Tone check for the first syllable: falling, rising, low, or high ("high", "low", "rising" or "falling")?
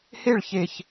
falling